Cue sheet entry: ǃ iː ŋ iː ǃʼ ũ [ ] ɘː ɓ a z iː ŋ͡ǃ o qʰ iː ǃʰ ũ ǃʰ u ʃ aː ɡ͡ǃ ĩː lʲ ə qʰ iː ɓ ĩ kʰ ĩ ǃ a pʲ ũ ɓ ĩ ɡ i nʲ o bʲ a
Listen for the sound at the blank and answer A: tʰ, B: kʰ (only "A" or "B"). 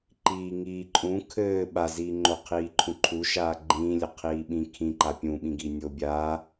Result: B